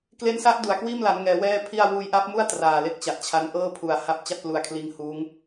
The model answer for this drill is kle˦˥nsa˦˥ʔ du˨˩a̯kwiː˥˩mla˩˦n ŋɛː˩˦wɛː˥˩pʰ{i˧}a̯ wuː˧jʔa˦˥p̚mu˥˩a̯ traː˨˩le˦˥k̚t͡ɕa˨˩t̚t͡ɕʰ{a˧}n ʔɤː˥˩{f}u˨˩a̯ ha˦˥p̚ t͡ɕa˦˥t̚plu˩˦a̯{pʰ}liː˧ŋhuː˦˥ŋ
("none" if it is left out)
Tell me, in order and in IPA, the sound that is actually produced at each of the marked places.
i˥˩, a˧, pʰ, kʰ

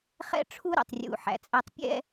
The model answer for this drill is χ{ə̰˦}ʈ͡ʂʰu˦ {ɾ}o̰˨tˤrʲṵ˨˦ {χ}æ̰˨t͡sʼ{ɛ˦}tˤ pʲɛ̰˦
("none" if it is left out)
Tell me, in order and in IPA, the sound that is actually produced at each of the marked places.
ɛ̰˦, ɾ, ħ, æ˦

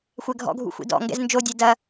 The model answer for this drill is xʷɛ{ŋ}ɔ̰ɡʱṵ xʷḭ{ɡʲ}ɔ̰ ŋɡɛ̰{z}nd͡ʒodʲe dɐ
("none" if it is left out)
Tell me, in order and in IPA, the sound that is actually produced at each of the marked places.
ɡʱ, d, z

